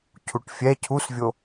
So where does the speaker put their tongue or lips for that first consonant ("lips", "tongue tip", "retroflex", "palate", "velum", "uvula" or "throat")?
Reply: palate